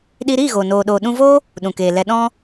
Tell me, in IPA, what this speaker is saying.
ɗ i˧ ɾ iː˦˨ ɣ o˨ n oː˨ ɗ o˨ ɗ ũ˧ v oː˦ | ɗ ũ˨ k eː˨ l ɛ˧ ɗ ɔ̃˦

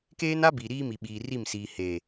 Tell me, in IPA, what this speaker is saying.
k eː˦ n a˦ b iː˨ ɾ iː˦ m i˨ ɓ iː˨ r i˦˨ m s iː˨ h eː˨

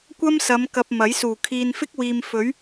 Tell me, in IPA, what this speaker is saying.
kʷ ɐ˥ m s ɐ˨˧ m k ɐ˨ p̚ m ɐ˨˥ j s uː˨˩ kʰ iː˨ n f ɪ˥ k̚ w iː˨ m f ɵ˨˥ ɥ

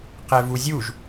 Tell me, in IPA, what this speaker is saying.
q ɛ v u zʲ u ʒ

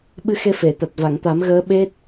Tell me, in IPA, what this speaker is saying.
ɓ ɨ˧ x e˧ f e˨˩˨ t̪ a˨˩ t̚ v a˨˩˨ ŋ t̪ a˨˩˦ m ɣ əː˧˥ ɓ e˦˥ t̚

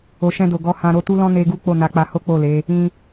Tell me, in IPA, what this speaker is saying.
o˨ ʃ ɛ̃˧ d o˨ ɡ ɔ˧ h ã˧ ɾ o˧ t u˦ l ɔ̃˦ n e˧ ɡ u˦ k͡p o˦˨ n a˧ k͡p a˧ h o˦ k͡p o˦˨ l e˨˦ | ĩ˧

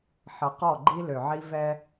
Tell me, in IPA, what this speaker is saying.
ħ ʌ˨ q ɔ˦˨ ɡ͡ǃ i˦ l ø˨ ʕ i˦ v ɛ˦

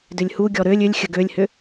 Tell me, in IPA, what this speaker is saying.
d ʏ lʲ h u ɡʲ ɔ ɾ ø lʲ ʏ lʲ xʲ ə ɡ ø lʲ h ʏ

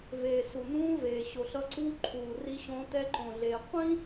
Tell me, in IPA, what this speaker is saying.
v eː˨ s u˨ n̪ ũː˦ v eː˨ ɕ o˨ ɬ ʌ˦ ǀ uː˦ ǃʰ uː˨ r i˦ ɕ õ˦ t ɛ˦ ǃ õ˨ ɮ eː˨ qʷ ĩ˦

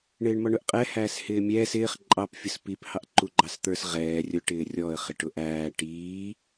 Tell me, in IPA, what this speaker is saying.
ɳ ɪː ɳ m ɔ ɳ ʊ ʔ qʼ ɛ h æː s h ɪː mʲ ɛː s ɪː χ ǃʼ ɑ p fʲ ʊ s p i p h ɑ ʔ ǃ u ɡ͡ǃ ɑ s t̪ ə˞ s ʁ ɛː rʲ ʊ ʈ ɪː rʲ ɔ ə̯ χ ɪ ʈ ʊ ʔ æː ʈ iː

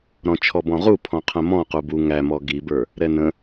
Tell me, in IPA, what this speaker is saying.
ɾ ɔ̃ t͡ʃʰ ɔ b ɔ̃ ʁ u pʰ ɔ̃ qʰ ə̃ m ɔ̃ q u b u ŋ æ m ɔ ɡ i b ə˞ | ɾ ɛ n ə̃

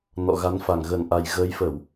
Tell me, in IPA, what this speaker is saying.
n ɔ̰˧˨ ɣ a˨˦ n f a˨˩ ŋ ɣ ə˨˩ n ʔ a˨˩ j ɣ əː˨˦ j f ə˧˩˨ w

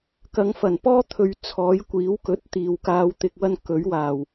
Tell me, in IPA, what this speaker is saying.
k ɐ˨˧ ŋ f ɐ˨˩ n p ɔː˥ t̪ʰ ɵ˨ ɥ t͡sʰ ɔː˨˥ j kʷ iː˨˥ w k ɵ˨˥ t̚ t̪ iː˨ w k aː˧ w t̪ ɪ˨ k̚ w ɐ˧ n k ɵ˨˥ ɥ w aː˨˩ w

